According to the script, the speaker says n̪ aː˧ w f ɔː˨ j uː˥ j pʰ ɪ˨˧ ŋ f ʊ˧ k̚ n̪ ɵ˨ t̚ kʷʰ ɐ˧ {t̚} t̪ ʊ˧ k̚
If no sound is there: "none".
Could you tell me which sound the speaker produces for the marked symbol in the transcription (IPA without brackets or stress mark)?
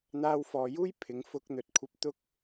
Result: p̚